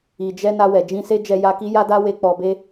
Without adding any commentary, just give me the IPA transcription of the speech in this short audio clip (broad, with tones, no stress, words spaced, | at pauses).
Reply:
i˨d͡ʒɛ˧ na˧wɛ˨d͡ʒĩ˧ se˦ d͡ʒɛ˧ja˧ki˦ ja˦da˦we˧ k͡pɔ˧be˦